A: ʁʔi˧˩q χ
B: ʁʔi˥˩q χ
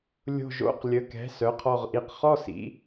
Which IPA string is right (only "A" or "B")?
A